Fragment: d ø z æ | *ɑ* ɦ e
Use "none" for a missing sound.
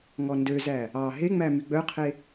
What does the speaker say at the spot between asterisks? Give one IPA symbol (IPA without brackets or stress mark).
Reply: ɑ